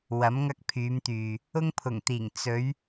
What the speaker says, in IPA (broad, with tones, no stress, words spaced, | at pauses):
wɐ˨˥mŋɐ˧k̚pʰyː˨˧mt̪yː˨ | ʊ˧ŋpʰʊ˨˩ŋt̪iː˨˩ŋ t͡sɵ˨˧ɥ